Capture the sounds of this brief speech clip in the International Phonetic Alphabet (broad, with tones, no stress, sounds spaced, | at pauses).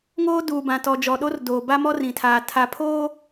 ŋ oː˦ d uː˨ b ã˨ t ɔ˨ d͡ʒ ɔ˨ ɗ o˦ r d oː˨ b a˦ m ɔ˦ r ĩ˨ tʰ aː˨ tʰ a˨ pʰ oː˦